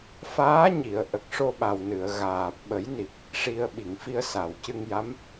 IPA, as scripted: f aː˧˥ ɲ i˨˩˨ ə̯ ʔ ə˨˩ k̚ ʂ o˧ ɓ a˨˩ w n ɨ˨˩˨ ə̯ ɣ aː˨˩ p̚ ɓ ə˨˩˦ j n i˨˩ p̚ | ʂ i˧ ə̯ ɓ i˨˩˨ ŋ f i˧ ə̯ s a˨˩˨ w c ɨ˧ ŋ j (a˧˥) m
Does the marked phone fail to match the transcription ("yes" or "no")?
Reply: no